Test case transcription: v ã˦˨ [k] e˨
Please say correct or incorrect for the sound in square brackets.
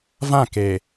correct